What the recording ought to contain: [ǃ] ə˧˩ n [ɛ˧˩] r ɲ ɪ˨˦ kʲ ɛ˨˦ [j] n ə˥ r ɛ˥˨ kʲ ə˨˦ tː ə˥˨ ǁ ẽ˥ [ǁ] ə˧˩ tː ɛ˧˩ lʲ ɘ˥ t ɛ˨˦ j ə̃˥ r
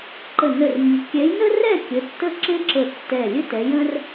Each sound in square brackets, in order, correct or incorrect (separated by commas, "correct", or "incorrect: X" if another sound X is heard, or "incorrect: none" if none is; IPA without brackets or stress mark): correct, incorrect: ə˧˩, correct, correct